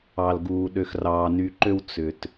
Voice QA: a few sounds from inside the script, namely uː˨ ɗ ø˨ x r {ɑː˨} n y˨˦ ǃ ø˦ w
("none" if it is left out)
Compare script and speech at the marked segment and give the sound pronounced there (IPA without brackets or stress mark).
ɑː˨